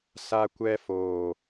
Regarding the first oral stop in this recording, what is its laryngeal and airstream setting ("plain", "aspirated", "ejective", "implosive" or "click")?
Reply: plain